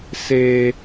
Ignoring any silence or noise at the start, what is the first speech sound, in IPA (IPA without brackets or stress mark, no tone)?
s